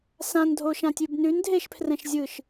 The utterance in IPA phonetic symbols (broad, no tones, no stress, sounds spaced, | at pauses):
s ã n dʱ o ʃ ã tʲ ʉ b n ʉ n dʱ e ʃ pʰ r ɛ̃ ʃ zʲ ɯ ʃ